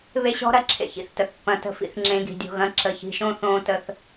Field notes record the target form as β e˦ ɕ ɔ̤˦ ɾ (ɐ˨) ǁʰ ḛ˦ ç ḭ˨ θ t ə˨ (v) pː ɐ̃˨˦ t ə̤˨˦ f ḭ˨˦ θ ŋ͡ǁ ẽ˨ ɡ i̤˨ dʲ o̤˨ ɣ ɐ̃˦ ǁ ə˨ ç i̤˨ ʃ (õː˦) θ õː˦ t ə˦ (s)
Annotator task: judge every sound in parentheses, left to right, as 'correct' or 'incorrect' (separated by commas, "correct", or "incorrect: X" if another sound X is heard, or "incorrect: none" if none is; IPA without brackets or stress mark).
correct, incorrect: θ, incorrect: õ˦, incorrect: θ